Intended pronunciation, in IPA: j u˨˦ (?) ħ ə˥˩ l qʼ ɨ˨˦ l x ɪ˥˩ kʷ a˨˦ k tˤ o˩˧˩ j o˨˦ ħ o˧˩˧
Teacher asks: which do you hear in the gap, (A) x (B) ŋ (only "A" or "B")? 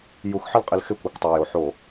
A